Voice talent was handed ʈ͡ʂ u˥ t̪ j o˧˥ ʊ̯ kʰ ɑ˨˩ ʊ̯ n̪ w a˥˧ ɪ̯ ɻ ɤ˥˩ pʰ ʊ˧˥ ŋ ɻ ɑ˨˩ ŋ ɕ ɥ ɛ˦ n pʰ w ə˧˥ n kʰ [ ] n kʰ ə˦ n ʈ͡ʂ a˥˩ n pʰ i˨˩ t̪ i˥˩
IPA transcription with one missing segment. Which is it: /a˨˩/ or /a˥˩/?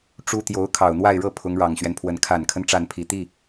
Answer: a˨˩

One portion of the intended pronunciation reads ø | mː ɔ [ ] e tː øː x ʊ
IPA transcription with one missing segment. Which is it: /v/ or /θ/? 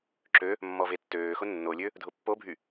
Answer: v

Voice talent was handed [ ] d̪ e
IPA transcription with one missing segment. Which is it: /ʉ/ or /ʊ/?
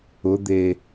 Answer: ʊ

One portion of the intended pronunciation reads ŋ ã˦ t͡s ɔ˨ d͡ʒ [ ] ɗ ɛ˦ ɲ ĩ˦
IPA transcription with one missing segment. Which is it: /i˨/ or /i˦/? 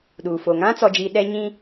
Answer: i˨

